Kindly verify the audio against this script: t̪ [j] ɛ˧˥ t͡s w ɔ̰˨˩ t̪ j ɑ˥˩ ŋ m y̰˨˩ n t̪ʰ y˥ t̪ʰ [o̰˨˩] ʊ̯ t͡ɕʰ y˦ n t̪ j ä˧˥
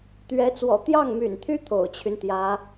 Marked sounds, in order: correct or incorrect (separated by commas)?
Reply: incorrect, correct